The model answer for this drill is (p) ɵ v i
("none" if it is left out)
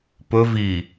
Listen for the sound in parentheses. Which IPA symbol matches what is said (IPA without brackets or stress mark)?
p